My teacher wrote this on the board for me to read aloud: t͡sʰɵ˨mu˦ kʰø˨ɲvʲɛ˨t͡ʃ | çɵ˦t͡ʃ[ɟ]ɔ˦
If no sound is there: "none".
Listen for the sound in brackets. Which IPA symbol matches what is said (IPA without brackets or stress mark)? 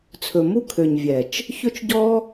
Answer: ɟ